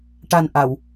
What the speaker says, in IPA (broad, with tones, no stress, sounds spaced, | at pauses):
ʈ a˨˩ n ʔ a˨˩˨ w